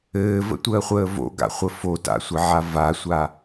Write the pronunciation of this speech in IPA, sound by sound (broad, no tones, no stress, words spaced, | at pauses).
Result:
ɘːvə̰tʷəːχʷəː vo̰ɡa̰χʷə fota̰sʷɘʕa vasʷa